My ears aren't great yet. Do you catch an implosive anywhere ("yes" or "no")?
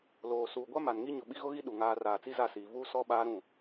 yes